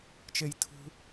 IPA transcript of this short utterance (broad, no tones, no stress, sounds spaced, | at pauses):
t͡ʃ e j tʰ ṳ